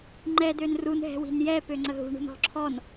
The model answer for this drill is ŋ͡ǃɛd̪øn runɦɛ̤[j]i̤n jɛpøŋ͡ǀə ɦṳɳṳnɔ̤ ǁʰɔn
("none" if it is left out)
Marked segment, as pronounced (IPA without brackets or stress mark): w